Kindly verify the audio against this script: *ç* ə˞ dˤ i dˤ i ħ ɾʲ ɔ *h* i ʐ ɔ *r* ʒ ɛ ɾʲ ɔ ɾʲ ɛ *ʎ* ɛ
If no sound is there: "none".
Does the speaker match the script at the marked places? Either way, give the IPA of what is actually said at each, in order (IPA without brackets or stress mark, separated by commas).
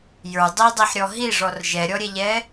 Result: j, ɦ, r, ʎ